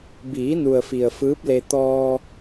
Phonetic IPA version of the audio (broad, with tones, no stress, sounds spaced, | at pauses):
b iː˩˧ n u˩ ə̯ f i˩ ə̯ f ɯː˧˥ p̚ l e˧ t̪ ɔː˧